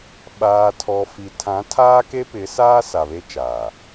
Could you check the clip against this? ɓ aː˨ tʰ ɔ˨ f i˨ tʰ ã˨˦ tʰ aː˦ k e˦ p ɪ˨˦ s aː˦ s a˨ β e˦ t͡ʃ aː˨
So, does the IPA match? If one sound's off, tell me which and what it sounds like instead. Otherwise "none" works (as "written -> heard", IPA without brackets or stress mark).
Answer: none